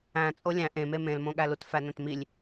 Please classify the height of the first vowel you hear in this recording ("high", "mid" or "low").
low